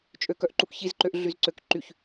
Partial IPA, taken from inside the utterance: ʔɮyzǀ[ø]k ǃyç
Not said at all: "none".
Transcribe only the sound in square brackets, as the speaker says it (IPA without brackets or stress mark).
ø